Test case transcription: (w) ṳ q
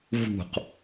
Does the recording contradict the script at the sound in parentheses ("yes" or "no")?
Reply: yes